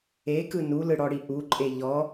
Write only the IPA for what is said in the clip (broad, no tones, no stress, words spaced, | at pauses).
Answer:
ekɯ nulɯɽɔɽi ʔuǃʼe ʎɔ